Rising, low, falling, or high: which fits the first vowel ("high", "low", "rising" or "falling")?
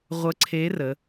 rising